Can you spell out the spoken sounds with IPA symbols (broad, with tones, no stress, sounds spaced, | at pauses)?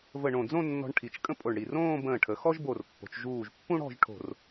v ə˧˩ ɳ õ˧˩ d͡z õ˥˧ nː ɔ̤˧ ɳ ʈʰ i˩˧ t͡ʃ kʼ ə̃˥ pʼ o˧˩ ɳ ɽ i˧˩ r õː˥˧ b ə̃ː˧˩ ʈʰ ə˩˧ x ɔ˥ ʒ b o˧˩ r pː o̤˩˧ t͡ʃ ʒ uː˧˩ ʒ pː ũ˥ ɽ ɔ̤˥˧ ʒ ʈʰ o̤˧˩ r